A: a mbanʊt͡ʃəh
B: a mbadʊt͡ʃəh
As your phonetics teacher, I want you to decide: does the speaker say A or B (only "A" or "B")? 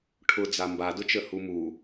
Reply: B